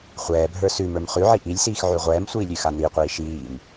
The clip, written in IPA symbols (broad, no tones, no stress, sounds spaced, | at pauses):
χʷ ɛː bʱ ə˞ s ʉ m ə˞ m χ ʉ ʕ i ʔ i lʲ s iː x ʕ ʉ ʁʷ ɛː m sʷ iː lʲ ʉ x a n i qʷ iː ʃ iː m